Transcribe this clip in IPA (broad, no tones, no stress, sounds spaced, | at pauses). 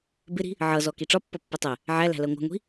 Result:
b ɪ ɾ i̤ | ʕ ʌ z ɔ k i ʈ͡ʂ ɒ pː ʌ pː ɛ tˤ ɛ | ʕ æ l æ̤ l ɜ ŋʷ æ̤ ŋʷ i̤